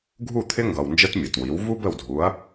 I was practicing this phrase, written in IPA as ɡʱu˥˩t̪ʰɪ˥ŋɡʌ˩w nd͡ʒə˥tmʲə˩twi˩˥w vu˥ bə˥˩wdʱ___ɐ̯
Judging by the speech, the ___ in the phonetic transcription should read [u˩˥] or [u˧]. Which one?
u˩˥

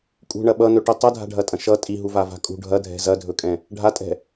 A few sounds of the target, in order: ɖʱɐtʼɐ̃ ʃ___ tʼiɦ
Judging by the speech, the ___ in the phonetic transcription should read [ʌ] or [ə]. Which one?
ʌ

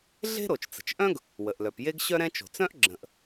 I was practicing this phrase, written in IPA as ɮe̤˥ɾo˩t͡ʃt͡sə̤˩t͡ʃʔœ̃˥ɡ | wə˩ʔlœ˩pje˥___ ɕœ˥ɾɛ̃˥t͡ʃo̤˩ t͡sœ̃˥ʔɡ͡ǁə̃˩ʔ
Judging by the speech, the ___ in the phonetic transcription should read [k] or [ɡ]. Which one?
ɡ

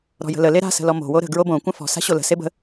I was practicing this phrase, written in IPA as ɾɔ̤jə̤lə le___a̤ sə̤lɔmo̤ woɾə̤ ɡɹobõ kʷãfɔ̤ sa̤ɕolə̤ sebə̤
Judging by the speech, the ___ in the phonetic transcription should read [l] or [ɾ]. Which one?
ɾ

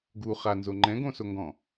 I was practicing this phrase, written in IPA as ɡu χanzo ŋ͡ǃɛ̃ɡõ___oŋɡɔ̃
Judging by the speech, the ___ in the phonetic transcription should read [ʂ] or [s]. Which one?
s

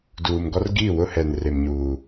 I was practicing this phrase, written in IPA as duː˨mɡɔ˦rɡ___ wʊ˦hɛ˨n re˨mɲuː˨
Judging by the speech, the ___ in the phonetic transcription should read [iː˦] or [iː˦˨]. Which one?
iː˦˨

